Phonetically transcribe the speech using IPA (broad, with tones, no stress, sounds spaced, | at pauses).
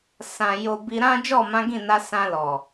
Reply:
s ã˨ j o˨ b i˧ ɾ ã˦ d͡ʒ ɔ˦˨ m ã˨˦ ɡ ĩ˦˨ n a˧ s ã˧ l ɔ˨